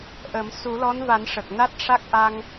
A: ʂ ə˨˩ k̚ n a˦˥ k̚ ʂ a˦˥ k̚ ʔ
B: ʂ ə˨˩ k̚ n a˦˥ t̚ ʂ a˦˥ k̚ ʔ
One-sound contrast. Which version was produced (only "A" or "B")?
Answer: B